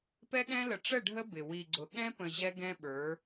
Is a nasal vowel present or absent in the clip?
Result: present